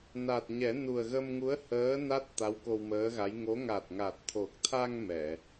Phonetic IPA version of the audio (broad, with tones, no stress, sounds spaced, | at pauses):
n a˨˩ t̚ ɲ ɛ˨˩˦ n u˨˩ ə̯ ɣ ə˧ m ŋ u˧˥ ə̯ h əː˧˥ n a˦˥ t̚ t̪ a˧˥ w k o˧ w m əː˧˥ ɣ a˧˥ j ŋ o˧˥ ŋ a˨˩ t̚ ŋ a˨˩ t̚ t̪ʰ o˨˩ k̚ t̪ʰ a˧ ŋ m ɛ˨˩˨